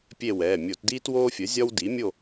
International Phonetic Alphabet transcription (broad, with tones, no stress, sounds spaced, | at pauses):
pʲ e˦˨ w ɛː˩˧˩ mʲ o˧˩˧ t d iː˦ t w oː˦ fʲ ə˩˥ zʲ ɒ˦ w d i˩˥ mʲ o˦˨